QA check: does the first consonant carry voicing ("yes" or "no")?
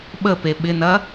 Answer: yes